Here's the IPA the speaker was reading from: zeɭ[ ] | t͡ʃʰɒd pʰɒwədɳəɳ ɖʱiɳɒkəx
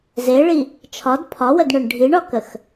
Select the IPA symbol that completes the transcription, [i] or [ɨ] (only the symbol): i